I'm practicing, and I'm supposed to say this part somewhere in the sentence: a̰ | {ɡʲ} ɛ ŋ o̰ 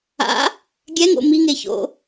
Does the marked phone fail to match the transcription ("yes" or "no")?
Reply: no